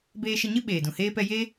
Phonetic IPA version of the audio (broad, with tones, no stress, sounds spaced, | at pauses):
b eː˧ ʃ ə˧ ɲ ɨ˦ ɓ eː˨ d ũ˨ h eː˦ p ɛ˦ j e˦